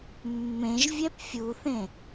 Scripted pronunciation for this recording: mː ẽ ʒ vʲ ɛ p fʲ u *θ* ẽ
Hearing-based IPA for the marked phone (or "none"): θ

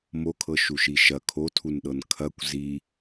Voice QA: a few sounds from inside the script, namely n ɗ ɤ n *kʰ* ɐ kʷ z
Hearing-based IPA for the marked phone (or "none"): kʰ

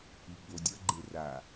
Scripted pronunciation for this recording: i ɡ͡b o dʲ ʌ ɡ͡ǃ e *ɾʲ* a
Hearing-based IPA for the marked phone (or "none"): r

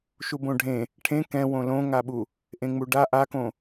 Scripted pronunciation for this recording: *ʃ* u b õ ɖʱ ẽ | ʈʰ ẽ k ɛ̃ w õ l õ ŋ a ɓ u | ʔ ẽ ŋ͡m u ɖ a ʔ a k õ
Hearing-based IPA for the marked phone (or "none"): ʃ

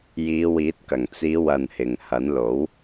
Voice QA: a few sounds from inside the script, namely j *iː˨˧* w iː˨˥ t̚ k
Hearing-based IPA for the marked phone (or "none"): iː˨˧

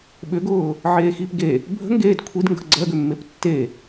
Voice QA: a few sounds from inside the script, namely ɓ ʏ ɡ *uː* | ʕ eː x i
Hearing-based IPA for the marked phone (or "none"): ʊː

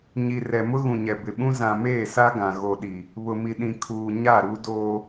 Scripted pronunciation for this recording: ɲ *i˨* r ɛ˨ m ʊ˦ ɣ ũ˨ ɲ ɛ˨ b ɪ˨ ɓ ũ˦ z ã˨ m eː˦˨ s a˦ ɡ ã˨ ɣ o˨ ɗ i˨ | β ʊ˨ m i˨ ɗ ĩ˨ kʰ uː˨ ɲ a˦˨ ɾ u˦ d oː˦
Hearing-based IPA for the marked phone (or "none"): i˨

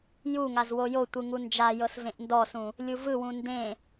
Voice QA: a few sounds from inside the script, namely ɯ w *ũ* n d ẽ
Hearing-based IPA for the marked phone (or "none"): ũ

